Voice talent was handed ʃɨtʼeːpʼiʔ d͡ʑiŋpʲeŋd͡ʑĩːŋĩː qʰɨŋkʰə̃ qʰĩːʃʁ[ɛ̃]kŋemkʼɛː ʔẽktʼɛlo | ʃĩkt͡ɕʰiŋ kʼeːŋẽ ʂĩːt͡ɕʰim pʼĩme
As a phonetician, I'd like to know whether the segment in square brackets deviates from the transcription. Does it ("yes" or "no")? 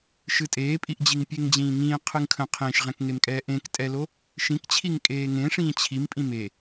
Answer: no